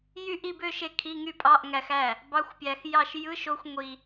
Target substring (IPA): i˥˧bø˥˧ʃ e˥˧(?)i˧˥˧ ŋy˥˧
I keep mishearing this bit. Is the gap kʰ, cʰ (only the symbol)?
kʰ